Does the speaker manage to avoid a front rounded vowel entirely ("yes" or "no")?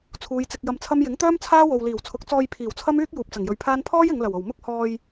no